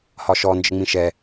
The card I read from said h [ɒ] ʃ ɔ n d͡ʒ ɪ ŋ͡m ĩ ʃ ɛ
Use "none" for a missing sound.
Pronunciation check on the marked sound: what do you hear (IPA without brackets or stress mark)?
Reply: ɒ